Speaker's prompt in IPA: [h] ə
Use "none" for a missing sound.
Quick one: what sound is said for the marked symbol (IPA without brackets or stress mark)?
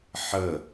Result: ħ